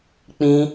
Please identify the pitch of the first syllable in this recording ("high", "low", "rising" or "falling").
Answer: high